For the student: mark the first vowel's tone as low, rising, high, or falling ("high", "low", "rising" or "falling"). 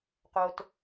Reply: low